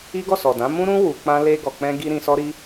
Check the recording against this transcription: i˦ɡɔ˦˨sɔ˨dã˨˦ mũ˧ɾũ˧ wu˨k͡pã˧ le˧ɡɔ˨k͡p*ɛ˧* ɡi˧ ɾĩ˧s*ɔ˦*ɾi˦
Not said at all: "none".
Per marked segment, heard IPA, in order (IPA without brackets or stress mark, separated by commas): ɛ̃˧, ɔ˦